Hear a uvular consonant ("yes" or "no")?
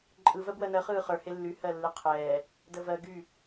yes